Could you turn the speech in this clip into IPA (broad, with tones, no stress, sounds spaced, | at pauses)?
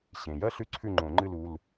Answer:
ɕ ẽ˩ j ɐ˥ ɬ ʉ˥ ǀʰ ʉ˥˨ ŋ͡ǃ õ˨˩˦ ŋ͡ǃ ɨ˥˨ l u˩˧˩ l